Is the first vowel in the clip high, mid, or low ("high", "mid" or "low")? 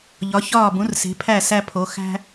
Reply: low